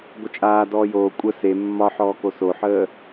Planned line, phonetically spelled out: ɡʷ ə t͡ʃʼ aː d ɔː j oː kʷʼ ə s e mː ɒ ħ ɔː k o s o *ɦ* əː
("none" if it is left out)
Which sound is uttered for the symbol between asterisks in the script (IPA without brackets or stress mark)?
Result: ħ